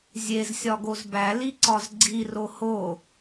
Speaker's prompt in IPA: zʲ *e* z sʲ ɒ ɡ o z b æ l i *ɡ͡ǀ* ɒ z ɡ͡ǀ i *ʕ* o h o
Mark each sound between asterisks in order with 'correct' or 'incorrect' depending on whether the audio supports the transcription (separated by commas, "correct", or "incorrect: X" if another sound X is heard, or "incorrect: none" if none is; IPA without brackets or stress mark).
correct, incorrect: ǀ, incorrect: r